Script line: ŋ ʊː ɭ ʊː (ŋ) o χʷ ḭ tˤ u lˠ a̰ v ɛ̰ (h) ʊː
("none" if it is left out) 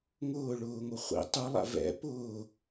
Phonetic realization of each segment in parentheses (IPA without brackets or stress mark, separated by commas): ŋ, p